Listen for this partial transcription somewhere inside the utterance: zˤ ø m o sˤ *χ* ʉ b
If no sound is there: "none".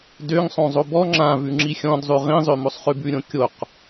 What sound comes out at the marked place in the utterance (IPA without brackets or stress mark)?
χ